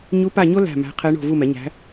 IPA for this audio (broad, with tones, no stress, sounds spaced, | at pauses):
ɲ u˧˥ p a˦˨ ɲ o˥ l æ̤˦˨ m æ̤˧˥ qʰ ɛ˧˥ ɳ o̤˦˨ v u˦˨ m ɛ˩˥ ɲ æ̤˧˥